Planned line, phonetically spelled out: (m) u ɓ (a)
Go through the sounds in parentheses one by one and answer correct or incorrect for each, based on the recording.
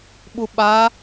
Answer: incorrect: ɓ, correct

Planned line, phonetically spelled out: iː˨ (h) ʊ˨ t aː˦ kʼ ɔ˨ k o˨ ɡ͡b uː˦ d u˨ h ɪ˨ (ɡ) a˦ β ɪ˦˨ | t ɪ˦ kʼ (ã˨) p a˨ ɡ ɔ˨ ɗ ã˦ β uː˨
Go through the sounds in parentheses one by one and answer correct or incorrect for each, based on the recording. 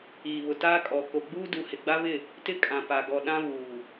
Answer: incorrect: β, incorrect: ɡ͡b, correct

